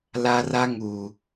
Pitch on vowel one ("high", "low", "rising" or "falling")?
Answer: high